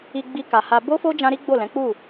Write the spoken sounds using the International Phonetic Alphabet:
i˧ ɡ͡b i˧ k a˨ h a˧ b o˦ f o˦ d͡ʒ ã˦ ɾ i˦ ɡ͡b o˦˨ l ɛ̃˨˦ k͡p u˦˨

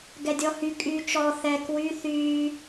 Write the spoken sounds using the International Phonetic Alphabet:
ɡ ɛ dʲ ɔ h y kʼ yː t͡ʃ ɔ θ ɛ k w y θ yː

